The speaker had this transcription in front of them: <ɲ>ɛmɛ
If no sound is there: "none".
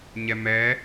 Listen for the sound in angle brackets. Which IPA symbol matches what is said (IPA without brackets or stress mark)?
ɲ